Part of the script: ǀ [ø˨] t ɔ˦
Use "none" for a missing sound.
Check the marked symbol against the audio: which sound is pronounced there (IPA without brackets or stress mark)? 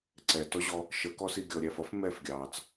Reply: ɛ˨